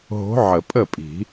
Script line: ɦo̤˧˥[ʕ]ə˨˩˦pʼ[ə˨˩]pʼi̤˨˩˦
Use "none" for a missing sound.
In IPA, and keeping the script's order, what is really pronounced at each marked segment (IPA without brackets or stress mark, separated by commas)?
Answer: ʕ, ə˥˩